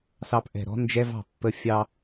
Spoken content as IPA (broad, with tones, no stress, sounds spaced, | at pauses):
s ɑ˧ p ʔ ɛ̤˨ ɾ ɔ̤˦ n d͡ʒ ɛ˦ v ɑ̤˨ pː ə˧ fʲ ɑ˧